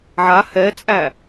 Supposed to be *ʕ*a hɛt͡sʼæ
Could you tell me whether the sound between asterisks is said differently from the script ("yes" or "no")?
no